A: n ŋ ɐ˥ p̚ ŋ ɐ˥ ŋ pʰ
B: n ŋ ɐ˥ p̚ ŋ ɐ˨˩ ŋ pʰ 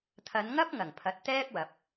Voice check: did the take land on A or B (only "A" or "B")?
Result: B